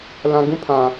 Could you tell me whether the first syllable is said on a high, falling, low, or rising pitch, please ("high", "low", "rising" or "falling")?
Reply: low